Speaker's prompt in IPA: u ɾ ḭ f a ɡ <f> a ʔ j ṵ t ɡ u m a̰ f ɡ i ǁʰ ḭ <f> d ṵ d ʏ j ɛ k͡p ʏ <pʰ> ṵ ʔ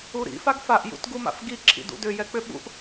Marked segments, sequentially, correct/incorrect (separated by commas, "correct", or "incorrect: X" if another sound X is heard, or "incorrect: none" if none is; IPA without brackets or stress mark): correct, incorrect: none, incorrect: ɓ